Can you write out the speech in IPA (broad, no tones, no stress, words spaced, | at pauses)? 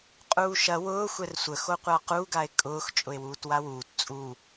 qʼuːʃɐ wʊː xʷɛrsʷə xoqʷaqu ɡae̯kʼʊːx t͡ʃʼʊe̯wuːtwawuːt t͡sʼu